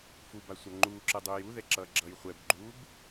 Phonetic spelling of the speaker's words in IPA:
f u b a sʷ a ŋ͡ǃ uː ǁ ɯ dˤ uː j u ð ɛ ǁ ʌː ɡ͡ǁ ʌː j χʷ ɛ b ɡ͡ǃ uː b

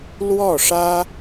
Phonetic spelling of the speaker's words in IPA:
l w ɔ˥˩ ʂ ä˥

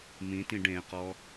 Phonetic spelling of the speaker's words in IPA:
m ĩ t ĩ ɖ ẽ q ɔ

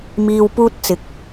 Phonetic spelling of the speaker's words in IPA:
m iː˧ w p uː˥ t̚ t͡s ɪ˨˥ k̚

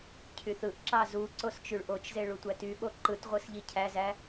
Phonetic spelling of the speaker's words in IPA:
cʰ y θ ɯ ʔ ǁ ɑ z u ǀ o s t͡ʃ y ɭ ʔ o t͡ʃ z e ɭ u tʷ æ t y ɓ o ǃ ɯ t ʁʷ ɯ s ʎ i cʰ æ z æ

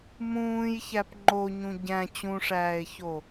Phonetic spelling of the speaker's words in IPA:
m ũː j ç æ p ŋ͡ǃ o ɲ ũ ɟ æ̃ t͡ɕ ũ ʂ æː e̯ ç o

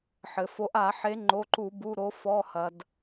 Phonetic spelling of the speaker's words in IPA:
ħ ɘ˩ f o˨˦ ʔ a˧˩˧ ħ e˨˦ ŋ͡ǃ o˩˧˩ ǃ u˧˩˧ b u˩˧˩ ɾ o˨˦ f ɔ˩˧˩ h ɐ˩ d

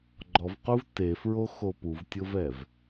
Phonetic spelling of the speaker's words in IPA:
ɡ͡ǃ ɔ v q u v t e f ɹ o x o p u v tʲ ʊ v ɛ v

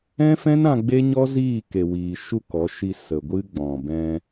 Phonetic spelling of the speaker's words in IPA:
ɛ̃˦ f ɛ̃˦ n ã˧ ɡ͡b e˦ ɲ ɔ˦ z iː˦˨ k e˨ w iː˨ ʃ u˦˨ k ɔ˨˦ ʃ i˧ s ə˨ ɡʷ ɨ˧ ɡ͡b ɔ̃˨ b ɛ̃˧

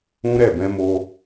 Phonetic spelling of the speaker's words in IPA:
ũ˦ ɾ ɛ˦˨ b ɛ̃˧ m o˧

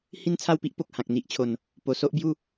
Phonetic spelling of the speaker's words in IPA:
h i˥˧ n t͡sʰ a˥˧ w p i˦ ʔ p o˨ k̚ h ã˨ k̚ n̪ i˦ ʔ t͡ɕʰ o˨˩ n | p o˨˩ s o˦ ʔ b j u˥˧

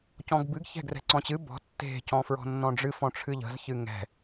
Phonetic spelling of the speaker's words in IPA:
c ɔ̃ ɡ b ɨ ɡ ç ɛ̤ ɡ r ɛ̤ ǀ ɔ̃ t͡ɕ ɨ b ɔ̤ tː e̤ c ɔ̃ f ɹ ɔ̤ nː ɔ̃ ɖ͡ʐ ɨ f ɔ̃ ʈ͡ʂʰ ɨ ʎ ə̤ z ç ɨ ŋ ɛ̤

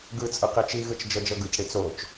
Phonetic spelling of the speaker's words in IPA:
ɡ ɯ t͡sʼ ɯ q i t͡ʃ i ɣ ɯ t͡ʃ d͡ʒ ɤ d͡ʒ ɤ ɡ ɯ c ɽ i t͡s o t͡ʃ

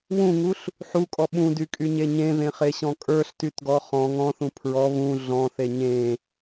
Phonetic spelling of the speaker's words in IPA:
w ũ ŋ u ɬ | ħ u kʼ ɔ ɓ ũ d y kʼ y ɲ e ɲ ẽ ð ẽ χ e ɕ ɔ̃ kʼ ə˞ ɬ t y t ɡ ɔ χ ɔ̃ ŋ ɔ̃ θ ũ pʰ ɹ ɔ β ũ ɮ ɔ̃ θ e ɲ ẽ

